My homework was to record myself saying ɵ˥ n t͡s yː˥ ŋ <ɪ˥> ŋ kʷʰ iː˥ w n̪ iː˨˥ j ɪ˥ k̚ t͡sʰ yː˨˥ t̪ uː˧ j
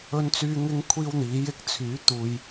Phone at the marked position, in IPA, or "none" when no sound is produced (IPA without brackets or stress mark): ɪ˥